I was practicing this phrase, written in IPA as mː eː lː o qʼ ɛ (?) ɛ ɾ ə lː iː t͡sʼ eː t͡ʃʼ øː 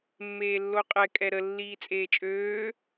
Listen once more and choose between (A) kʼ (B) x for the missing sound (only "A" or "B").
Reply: A